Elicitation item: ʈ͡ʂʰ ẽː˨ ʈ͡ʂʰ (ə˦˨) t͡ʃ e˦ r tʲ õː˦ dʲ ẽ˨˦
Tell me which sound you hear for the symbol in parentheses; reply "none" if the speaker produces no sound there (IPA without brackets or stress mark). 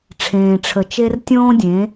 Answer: ə˨